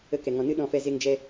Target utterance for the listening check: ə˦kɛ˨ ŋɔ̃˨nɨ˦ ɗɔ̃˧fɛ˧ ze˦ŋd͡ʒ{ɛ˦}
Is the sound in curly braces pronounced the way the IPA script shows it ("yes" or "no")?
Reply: yes